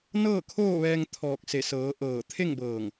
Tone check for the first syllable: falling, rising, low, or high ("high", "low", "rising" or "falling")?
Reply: falling